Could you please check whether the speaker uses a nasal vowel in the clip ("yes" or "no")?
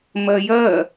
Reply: no